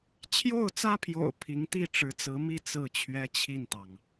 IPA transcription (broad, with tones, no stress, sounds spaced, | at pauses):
t͡ɕʰ j o˥˩ ʊ̯ t͡s ä˥ pʰ j o̰˨˩ ʊ̯ pʰ i˧˥ ŋ t̪ i˥˩ ʈ͡ʂ ɻ̩˧˥ t͡s ɹ̩˧˥ m i˥˧ t͡s ɹ̩˥˩ t͡ɕʰ ɥ ɛ˥ t͡ɕʰ i˥˩ n t̪ ɑ˩ ŋ